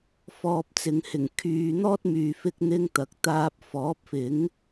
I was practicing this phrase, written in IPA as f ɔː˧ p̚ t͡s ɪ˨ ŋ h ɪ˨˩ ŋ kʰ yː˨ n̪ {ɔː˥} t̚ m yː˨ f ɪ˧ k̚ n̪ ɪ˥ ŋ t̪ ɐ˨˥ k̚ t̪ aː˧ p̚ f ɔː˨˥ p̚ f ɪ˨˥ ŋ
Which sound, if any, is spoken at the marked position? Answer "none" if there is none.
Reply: ɔː˥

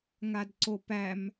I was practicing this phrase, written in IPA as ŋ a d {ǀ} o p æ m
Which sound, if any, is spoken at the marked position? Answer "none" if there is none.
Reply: ǀ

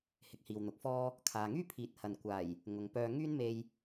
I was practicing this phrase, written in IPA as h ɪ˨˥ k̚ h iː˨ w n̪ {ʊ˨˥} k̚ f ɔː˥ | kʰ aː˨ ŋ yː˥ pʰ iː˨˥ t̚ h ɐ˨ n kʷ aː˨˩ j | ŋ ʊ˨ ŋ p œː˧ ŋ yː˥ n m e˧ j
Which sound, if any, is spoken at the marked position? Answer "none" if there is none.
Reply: ʊ˨˥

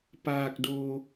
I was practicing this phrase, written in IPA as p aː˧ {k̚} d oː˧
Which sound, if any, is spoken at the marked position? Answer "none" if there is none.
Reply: k̚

